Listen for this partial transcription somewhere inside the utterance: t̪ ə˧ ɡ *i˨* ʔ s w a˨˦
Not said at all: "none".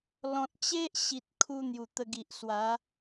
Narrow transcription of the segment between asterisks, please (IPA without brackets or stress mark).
i˨